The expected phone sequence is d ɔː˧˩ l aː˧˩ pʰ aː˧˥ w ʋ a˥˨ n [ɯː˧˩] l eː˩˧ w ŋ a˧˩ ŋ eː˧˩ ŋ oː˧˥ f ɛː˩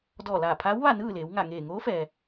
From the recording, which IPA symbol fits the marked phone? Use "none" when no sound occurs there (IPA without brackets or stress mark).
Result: ɯː˥˨